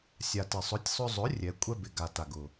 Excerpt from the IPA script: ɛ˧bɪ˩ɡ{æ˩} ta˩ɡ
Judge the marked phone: incorrect: a˩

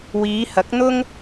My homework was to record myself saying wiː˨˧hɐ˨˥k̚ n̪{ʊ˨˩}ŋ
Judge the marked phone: incorrect: ʊ˥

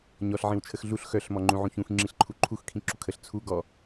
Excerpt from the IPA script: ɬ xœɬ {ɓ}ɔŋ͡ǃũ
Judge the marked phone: incorrect: m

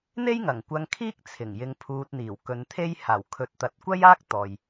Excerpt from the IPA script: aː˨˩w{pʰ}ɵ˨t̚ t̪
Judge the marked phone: incorrect: kʰ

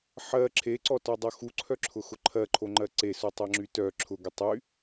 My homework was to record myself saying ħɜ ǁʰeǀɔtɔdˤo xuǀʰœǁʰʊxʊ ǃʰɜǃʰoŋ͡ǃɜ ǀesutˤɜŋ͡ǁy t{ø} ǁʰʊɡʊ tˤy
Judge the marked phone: incorrect: œ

